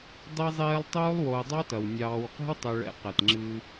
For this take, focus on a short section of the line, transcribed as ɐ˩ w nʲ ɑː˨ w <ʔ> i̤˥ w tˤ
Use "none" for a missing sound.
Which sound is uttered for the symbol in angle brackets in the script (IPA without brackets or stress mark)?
q